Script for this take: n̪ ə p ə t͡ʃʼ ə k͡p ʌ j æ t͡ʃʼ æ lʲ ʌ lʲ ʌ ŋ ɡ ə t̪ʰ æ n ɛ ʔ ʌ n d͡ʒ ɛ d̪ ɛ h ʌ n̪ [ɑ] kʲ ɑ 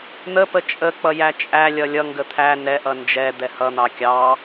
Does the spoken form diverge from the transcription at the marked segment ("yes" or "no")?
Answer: no